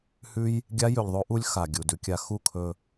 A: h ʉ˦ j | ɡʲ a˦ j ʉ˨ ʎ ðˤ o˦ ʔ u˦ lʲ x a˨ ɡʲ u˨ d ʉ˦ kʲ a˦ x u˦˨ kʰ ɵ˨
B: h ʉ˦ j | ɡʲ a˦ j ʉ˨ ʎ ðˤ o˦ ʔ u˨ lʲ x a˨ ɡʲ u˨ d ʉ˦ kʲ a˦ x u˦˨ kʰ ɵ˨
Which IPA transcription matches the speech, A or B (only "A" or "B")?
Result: A